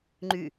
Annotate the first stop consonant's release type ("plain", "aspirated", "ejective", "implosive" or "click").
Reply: click